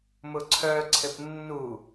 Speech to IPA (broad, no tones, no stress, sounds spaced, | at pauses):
m ʊ ǀʰ œ ǀʰ ɘ p nː u